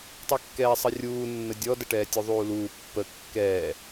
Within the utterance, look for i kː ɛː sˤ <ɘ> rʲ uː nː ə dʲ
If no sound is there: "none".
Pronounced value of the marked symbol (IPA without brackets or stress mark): ɘ